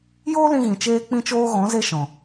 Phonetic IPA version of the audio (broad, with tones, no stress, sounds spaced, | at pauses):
j oː˦ l ĩ˧ ɣ ĩ˨ t͡ʃ eː˦ k͡p ĩ˦ t͡ʃ oː˦ ɣ ɔ̃˨˦ z e˧ ʃ ɔ̃˨